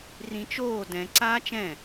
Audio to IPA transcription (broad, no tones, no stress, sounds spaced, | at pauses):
r ĩ t͡ʃ oː d ɛ̃ ǀ aː t͡ʃ ɛ̃